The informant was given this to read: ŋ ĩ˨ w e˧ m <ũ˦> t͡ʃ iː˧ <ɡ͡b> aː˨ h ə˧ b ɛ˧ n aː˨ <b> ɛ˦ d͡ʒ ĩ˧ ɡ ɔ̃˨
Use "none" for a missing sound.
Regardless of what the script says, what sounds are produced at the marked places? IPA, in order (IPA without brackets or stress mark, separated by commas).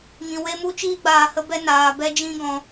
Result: u˦, ɡ͡b, b